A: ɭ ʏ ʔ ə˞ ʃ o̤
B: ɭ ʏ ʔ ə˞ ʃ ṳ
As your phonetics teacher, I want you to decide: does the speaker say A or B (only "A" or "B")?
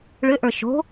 A